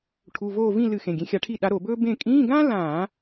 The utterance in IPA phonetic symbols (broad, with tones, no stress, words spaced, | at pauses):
ʈʰu˩˧˩voː˦˨ vĩ˦˨lɨ˧˩˧xẽ˩˧˩ ɡʲẽ˨˦xʲa˨˦ʈʰi˦˨ ɗa˨˦ ɾo˧˩˧bɵː˥ bẽ˦˨ kʼĩː˧˥˧ɡãː˥lãː˧˩˧